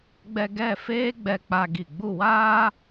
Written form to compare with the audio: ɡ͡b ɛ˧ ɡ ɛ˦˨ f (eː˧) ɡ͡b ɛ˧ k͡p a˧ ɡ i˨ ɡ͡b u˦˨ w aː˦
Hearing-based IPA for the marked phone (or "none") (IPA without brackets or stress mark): eː˦